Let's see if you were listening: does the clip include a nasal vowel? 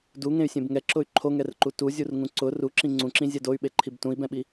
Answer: yes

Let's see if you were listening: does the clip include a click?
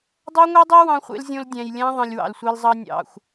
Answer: no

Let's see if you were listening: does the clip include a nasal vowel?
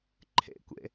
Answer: no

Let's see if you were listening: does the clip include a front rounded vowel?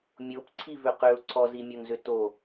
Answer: yes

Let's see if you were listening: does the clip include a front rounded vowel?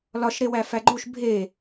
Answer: no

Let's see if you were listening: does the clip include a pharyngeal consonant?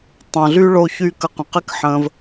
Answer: yes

